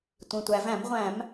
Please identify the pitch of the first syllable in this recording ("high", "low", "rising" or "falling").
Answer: low